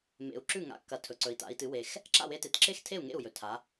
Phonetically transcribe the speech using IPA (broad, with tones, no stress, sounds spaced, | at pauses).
m ḛ˨˩ u̯ ǁ ʉ˥˩ ŋ a̰˨˥ kː ɐ˨˩ tʰ ɵ˩˧ ǀ ɵ˩˧ i̯ t a̰˩˧ i̯ t ɨ˩˧ w e˨˩ x | ǁ a̰˥˩ w e˧ t e˨˩ t ǁ e˥˩ x tʰ e˥˩ u̯ ŋ ḛ˥˩ u̯ j ɵ˩˧ tʰ a˩˧